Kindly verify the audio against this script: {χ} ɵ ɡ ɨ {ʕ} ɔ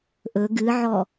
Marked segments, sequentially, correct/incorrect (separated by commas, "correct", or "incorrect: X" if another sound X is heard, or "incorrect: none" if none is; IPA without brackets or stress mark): incorrect: ʔ, correct